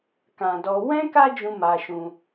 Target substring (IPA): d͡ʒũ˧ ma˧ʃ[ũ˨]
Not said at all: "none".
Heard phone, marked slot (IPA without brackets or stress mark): ũ˧